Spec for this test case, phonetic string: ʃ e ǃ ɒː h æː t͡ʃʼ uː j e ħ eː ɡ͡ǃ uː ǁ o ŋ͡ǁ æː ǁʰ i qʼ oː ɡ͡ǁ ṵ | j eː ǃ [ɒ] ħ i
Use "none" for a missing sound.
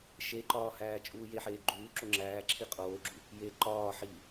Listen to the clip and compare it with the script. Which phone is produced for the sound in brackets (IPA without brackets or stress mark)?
ɒː